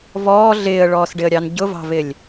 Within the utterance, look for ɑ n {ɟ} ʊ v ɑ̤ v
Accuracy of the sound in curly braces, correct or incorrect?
correct